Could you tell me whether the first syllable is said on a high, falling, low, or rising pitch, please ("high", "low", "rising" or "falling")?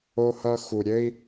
high